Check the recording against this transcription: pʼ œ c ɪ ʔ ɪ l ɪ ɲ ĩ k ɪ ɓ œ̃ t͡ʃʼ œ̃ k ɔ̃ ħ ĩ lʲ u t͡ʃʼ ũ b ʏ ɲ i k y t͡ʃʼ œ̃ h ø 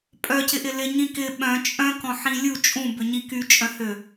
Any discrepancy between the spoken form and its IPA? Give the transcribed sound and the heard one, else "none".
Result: none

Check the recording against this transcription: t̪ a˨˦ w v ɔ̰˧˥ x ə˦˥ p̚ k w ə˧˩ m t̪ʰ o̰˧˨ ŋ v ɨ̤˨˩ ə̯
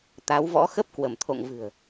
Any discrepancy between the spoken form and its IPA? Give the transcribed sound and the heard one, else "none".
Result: none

